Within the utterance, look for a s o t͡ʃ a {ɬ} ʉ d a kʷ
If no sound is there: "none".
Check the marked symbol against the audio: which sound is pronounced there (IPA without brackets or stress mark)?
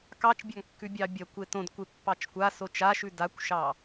ʃ